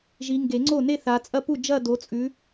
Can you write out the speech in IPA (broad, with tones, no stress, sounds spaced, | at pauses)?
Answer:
ʒ i˨˦ ŋ ɡ e˨˩˦ ŋ͡ǀ o˥˩ n e˥˧ θ a˨˦ t͡sʼ ɐ˥˧ p u˥˩ d͡ʒ ɐ˥˧ d o˨˦ t͡sʼ ʉ˨˦